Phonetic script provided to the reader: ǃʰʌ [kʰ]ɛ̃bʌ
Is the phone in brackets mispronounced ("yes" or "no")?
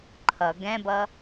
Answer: yes